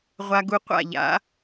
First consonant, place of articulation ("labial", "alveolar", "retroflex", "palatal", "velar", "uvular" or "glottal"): uvular